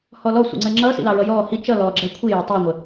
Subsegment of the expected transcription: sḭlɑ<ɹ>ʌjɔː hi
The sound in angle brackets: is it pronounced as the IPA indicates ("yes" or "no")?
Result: yes